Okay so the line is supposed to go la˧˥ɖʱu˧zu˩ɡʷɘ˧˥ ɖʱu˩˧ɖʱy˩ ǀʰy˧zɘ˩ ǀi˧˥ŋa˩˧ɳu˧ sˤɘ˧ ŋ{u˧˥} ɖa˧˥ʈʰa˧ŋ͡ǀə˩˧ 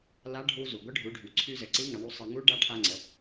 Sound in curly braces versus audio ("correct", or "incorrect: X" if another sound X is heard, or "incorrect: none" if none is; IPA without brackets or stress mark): correct